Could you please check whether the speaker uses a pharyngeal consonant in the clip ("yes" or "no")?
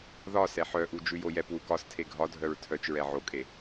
yes